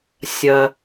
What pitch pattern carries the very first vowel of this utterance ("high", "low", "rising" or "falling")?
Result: low